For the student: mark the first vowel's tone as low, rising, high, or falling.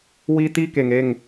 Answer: high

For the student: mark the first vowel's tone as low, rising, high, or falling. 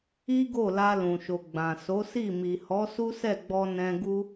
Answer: high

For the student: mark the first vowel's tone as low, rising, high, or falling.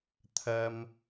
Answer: high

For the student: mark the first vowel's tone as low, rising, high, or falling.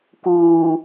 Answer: low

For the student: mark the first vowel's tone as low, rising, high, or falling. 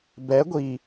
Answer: rising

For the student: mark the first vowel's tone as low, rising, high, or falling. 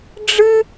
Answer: high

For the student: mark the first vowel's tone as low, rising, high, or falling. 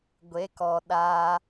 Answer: rising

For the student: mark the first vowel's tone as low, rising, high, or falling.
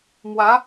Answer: rising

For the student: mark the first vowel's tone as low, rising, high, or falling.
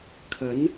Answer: rising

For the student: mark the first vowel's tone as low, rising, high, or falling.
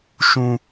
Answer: high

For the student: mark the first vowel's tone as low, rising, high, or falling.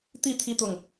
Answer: falling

